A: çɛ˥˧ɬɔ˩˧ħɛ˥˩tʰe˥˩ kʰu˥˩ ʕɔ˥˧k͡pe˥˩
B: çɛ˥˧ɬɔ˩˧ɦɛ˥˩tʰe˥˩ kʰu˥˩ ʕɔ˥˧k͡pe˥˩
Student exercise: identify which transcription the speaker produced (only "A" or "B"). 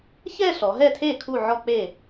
B